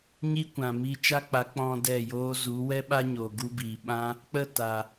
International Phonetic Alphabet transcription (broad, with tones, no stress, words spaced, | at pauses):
ɲiː˦kʷã˨mi˧ t͡ʃa˦k͡pa˨˦ k͡pɔ̃˧ dɛ˦˨joː˦ zu˨˦wɛ˦ɓa˦ɲo˨ ɡu˧biː˨ɓã˦ | k͡pə˦˨ ta˨